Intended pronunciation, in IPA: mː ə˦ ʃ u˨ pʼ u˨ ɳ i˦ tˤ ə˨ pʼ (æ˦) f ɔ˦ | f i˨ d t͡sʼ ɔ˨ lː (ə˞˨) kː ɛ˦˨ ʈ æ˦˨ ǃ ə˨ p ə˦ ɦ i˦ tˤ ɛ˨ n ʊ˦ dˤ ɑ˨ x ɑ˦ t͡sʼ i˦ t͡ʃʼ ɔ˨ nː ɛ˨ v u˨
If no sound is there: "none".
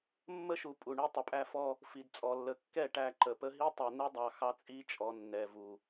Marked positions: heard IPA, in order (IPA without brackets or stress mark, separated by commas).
æ˦, ə˨